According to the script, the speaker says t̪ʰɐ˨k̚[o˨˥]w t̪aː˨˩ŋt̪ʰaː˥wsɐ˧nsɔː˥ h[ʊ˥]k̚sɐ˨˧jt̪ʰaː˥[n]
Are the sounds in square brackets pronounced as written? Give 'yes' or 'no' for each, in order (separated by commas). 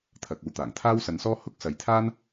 no, yes, yes